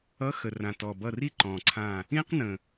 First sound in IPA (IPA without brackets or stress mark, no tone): ʌ